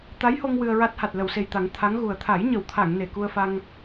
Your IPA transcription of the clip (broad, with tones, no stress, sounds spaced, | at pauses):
t̪ a˧˥ j h o˧ ŋ w ɨ˧ ə̯ ɹ a˦˥ t̚ h a˨˩ t̚ l ə˨˩˨ w s e˨˩ j t̪ a˨˩˦ ŋ t̪ʰ a˧˥ ŋ ɣ u˨˩ ə̯ t̪ʰ a˨˩˦ j ɲ ə˨˩˨ w t̪ʰ a˨˩˨ ŋ n e˨˩ k u˧ ə̯ f a˧ ŋ